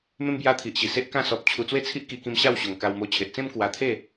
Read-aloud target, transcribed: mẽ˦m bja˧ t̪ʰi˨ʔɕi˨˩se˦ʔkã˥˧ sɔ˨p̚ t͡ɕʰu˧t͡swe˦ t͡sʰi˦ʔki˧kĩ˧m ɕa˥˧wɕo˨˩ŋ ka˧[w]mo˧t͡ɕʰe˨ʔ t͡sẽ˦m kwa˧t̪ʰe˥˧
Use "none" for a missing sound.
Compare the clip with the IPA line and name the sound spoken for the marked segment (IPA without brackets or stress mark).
w